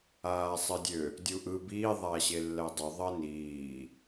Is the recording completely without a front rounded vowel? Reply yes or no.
no